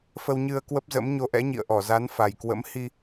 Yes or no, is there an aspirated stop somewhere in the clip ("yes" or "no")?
no